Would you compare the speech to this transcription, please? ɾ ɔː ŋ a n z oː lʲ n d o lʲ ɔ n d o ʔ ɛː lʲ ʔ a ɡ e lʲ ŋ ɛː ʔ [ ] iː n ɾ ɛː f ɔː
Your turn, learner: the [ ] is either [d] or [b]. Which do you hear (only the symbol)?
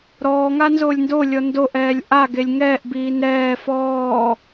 b